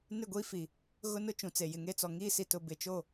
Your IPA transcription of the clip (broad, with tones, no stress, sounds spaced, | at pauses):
n ɪ˦˨ ɡʷ iː˦ f i˨ | ɣ ʊ˦ n ʊ˦ t͡ʃ ũ˨ t͡s e˨ j ɪ˨ ŋ e˦ t͡s ɔ˨ ŋ iː˦ s i˨ t ʊ˨ b ɪ˨ t͡ʃ o˦˨